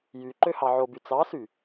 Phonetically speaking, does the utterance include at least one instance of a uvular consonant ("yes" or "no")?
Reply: no